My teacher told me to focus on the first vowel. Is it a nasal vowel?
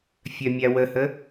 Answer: no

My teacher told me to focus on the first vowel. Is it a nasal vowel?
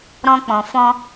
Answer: yes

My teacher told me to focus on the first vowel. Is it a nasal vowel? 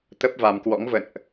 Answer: no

